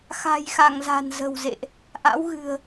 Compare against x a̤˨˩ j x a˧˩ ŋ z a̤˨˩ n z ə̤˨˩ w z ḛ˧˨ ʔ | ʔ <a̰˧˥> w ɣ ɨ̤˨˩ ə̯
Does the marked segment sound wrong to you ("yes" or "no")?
no